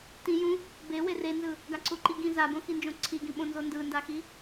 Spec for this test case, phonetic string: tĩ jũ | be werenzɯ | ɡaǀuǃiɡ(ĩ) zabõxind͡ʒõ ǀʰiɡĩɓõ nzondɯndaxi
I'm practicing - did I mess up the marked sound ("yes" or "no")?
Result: no